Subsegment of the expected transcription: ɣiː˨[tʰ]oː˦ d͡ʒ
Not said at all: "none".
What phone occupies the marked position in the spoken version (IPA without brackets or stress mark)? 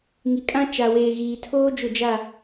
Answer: tʰ